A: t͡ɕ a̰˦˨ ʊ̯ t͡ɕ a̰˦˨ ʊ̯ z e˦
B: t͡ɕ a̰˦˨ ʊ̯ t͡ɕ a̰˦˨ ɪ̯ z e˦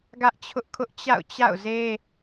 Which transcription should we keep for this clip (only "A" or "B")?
A